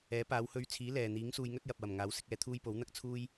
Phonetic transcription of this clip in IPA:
ɛː˨˥ p aː˨˧ w h ɵ˧ ɥ t͡sʰ iː˨˥ l ɛː˨ n̪ iː˨˥ ŋ s uː˧ j ŋ ɵ˥ t̚ j ɐ˨ p̚ w ɐ˨˩ m ŋ aː˨˥ w s ɪ˨˥ k̚ ɛː˧ t̪ʰ uː˥ j p o˨˥ w n̪ ɐ˥ k̚ t͡sʰ uː˥ j

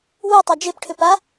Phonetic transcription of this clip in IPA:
w u tˤ a d͡ʒ e p ʈʰ ʏ p a

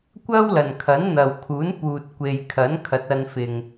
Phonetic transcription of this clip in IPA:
kʷ ɐ˥ w l ɐ˨ n kʰ ɐ˨˥ n n̪ ɐ˨ w kʰ uː˨˥ n p uː˨ t̚ kʷ e˨ j kʰ ɐ˨˥ n kʰ ɐ˨˥ t̚ ɐ˧ n f ɪ˨ ŋ

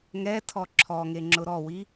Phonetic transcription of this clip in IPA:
ŋ ɛ tʰ ɔ ǁʰ ɔ ŋ e ŋ͡ǁ ʊ ɾ ɔ w i

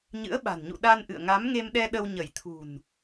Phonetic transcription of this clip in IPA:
ɲ ɨ̰˧˥ ə̯ ɓ a̤˨˩ n ɲ ṵ˧˨ ɗ a˧ n ʔ ɨ̰˧˨ ə̯ ŋ a˨˦ m ŋ e˧ m ɗ ɛ˧ ɗ ə˧ w ɲ ə˧˩ j t̪ʰ ṳ˨˩ n

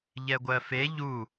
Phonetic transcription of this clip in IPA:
ʎ ɛ ɡʷ ɜ f e ʎ u

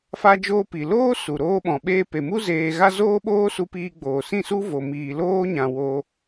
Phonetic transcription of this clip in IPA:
f a˧ d͡ʒ oː˧ p i˨ l oː˦ s u˨ ɾ oː˧ ɓ ɔ̃˨ ɓ eː˧ p e˨ m u˦ z eː˧ ɣ a˦ z oː˦ ɓ oː˦ s u˧ p iː˧ ɡ͡b oː˨ s ĩ˦˨ s u˦ v o˨ m iː˨ l oː˧ ɲ ã˨ w o˦

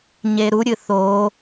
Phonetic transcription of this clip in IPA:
ɲ e ɾ u ɾʲ ɨ θ o

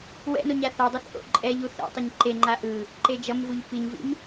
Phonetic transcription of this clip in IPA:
w ɛ̰ n o ɲ a θ a dˤ ɛ θ ʔ o̰ ǃʼ ɛ ʎ u θ ɛ̰ tˤ ʌ ɲ ǃ e ŋ͡ǃ a ʔ ɯ | ǃ e d͡ʒ ʌ m v u ʎ p i ɲ v ḭ m

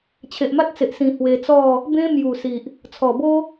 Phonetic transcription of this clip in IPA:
t͡ɕʰ e˨ ʔ m a˦ t̚ t͡s e˨ ʔ s ĩ˧ h w e˧ t͡s ɔ˥˧ | b ẽ˦ m j u˨˩ s i˨ ʔ | t͡sʰ ɔ˨˩ b o˦

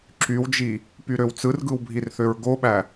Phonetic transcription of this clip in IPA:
ǁ y w d͡ʒ i | p y ɾ ø w t͡s ɯ r ɡ ɯ w bʱ i r θ ø ɹ ɡ o ɓ æ

